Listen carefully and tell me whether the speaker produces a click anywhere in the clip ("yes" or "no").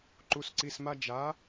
yes